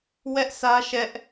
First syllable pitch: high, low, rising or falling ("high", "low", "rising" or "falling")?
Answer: high